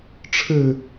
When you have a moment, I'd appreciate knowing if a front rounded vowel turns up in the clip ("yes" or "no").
no